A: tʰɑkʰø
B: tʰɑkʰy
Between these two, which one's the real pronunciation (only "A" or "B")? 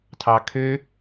A